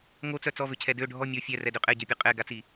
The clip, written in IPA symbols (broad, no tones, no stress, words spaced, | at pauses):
ŋot͡sœ t͡sɔvøcʰɛ dø ɖʱɔ mʲo fʲɛrɛdø qʼɛɟœpʲœ qʼɛɡat͡si